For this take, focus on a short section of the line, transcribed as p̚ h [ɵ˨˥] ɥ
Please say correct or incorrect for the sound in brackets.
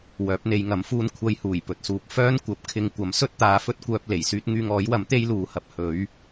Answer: correct